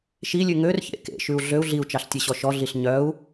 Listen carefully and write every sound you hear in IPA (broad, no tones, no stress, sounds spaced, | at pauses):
ʃ i lʲ ʉ ŋ ø r ç ḛ k ḛ ʃ ʉ u̯ ɮ ø u̯ ɮ i u̯ t͡ʃ ɑ ɬ tʲ e ɕ ɔ ʃ ɔ ɮ i ɬ ɲ œ u̯